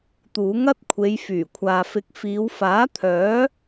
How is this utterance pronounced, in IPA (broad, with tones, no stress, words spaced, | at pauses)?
t̪uː˨˥ŋɐ˥t̚kʷʰe˨˧jfyː˨˩ kʷʰaː˨fɪ˨˥k̚ fiː˨˧wfaː˨˥t̪ʰœː˨˥